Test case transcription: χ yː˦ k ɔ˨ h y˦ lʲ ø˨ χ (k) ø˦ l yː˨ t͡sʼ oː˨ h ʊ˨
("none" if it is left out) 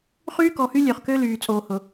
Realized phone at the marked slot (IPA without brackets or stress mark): k